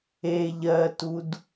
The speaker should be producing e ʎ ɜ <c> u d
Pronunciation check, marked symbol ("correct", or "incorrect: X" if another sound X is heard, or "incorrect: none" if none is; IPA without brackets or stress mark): incorrect: t